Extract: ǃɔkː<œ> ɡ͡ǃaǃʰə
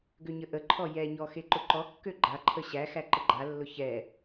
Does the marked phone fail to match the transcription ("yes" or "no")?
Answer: yes